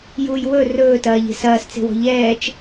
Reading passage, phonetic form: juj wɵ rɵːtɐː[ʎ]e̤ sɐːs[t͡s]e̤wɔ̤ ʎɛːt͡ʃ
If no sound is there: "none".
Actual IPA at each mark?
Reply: ʎ, t͡s

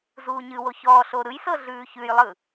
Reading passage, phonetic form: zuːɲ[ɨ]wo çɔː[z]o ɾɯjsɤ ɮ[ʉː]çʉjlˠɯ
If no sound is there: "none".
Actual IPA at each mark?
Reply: ɨ, ɬ, ʉː

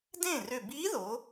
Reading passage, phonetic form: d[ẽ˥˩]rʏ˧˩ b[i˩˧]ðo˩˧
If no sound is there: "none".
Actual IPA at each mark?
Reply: ẽ˥˩, i˧˥

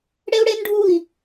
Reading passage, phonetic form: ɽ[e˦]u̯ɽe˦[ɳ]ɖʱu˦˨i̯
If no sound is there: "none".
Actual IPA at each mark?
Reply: e˦, n

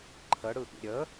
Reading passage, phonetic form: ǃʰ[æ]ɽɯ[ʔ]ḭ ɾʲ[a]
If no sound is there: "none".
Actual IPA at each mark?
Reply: ə, ʔ, ə

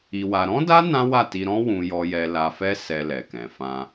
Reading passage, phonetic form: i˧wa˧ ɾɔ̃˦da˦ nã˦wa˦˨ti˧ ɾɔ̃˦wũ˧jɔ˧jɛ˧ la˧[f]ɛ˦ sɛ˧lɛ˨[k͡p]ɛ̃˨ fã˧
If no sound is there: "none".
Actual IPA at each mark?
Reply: f, k

